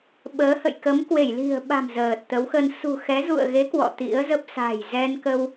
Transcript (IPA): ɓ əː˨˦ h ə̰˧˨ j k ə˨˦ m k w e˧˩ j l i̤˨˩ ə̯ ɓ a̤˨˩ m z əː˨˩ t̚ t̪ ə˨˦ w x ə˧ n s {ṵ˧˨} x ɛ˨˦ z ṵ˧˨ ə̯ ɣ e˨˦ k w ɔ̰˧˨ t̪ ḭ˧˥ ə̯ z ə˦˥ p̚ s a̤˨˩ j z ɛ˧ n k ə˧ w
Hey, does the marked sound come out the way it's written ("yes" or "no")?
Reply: no